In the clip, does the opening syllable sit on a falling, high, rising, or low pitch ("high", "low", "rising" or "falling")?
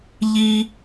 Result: low